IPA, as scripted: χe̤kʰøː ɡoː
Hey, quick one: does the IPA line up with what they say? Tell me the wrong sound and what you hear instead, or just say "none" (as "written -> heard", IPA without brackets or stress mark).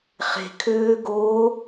none